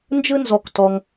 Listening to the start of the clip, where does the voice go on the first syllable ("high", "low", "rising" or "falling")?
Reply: high